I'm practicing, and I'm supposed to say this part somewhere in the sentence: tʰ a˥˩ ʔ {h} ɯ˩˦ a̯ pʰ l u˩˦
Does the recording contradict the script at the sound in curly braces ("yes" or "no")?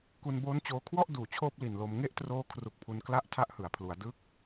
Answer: no